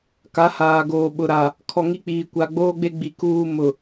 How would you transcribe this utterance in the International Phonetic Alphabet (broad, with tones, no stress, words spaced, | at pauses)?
ka˨˦haː˨ɡoː˨ ɓʊ˨ɾa˨ | kʰɔ˨ŋi˦k͡piː˨ kʷa˨ɡ͡boː˦ɡ͡be˦ɡ͡bi˨ kuː˦mʊ˨